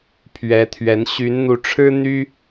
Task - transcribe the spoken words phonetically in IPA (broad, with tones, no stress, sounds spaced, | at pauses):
pʰ ɥ ɛ˨˦ t̪ʰ ɥ ɛ˨˦ n ɕ y˨˦ n n̪ u˨˦ ʈ͡ʂʰ ɻ̩˦ n̪ y˦